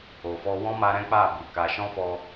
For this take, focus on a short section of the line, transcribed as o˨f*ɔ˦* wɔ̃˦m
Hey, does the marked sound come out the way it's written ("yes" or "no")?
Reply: no